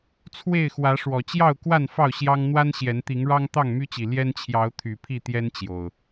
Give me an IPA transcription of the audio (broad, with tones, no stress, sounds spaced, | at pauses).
t͡sʰ w e˥˨ ɪ̯ x w ä˨˦ ʂ w ɔ˨˩ t͡ɕ j ɑ˥˨ ʊ̯ k w a˥˨ n f ɑ˥˨ ʊ̯ ɕ j ɑ˦ ŋ n̪ w a˦ n ɕ j ɛ˨˦ n t̪ i˨˦ ŋ ɻ ɑ˦ ŋ t̪ ɑ˥˨ ŋ m y˦ t͡ɕ i˨˩ l j ɛ˦ n t͡ɕʰ j ɑ˨˦ ʊ̯ t̪ʰ y˨˩ pʰ i˥˨ t̪ j ɛ˦ n t͡ɕ j o˨˩ ʊ̯